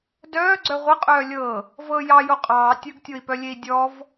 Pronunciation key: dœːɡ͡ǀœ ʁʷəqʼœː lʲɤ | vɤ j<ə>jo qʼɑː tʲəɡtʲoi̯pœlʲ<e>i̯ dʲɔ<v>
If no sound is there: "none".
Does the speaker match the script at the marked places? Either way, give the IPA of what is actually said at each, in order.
ɑ, e, v

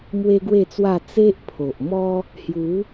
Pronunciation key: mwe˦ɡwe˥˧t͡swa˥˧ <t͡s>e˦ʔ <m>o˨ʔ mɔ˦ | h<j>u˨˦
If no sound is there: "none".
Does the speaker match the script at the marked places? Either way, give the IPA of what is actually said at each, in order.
t͡s, pʰ, j

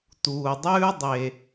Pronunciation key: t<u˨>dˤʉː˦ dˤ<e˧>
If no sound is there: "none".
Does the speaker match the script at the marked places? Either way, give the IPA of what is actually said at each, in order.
uː˨, e˧

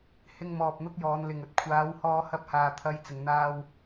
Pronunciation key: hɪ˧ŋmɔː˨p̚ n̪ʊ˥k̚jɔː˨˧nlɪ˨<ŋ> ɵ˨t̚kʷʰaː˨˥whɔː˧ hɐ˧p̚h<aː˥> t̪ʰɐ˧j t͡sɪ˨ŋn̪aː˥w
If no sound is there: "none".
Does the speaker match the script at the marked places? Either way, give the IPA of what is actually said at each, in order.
ŋ, aː˨

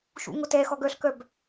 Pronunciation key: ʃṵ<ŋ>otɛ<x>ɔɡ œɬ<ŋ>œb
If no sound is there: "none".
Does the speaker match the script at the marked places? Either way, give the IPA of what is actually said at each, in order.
ŋ, x, k

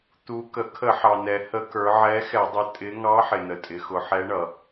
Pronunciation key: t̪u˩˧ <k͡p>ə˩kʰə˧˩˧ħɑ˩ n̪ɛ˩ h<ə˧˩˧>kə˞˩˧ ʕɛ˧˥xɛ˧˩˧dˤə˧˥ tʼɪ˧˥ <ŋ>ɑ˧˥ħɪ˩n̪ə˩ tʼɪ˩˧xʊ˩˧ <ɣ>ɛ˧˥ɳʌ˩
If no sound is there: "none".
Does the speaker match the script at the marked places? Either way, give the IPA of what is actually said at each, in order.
k, ə˧˩˧, ŋ, ħ

